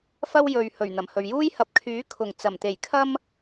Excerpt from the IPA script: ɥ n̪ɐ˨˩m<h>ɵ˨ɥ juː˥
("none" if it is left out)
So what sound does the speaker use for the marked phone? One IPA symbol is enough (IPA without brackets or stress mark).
h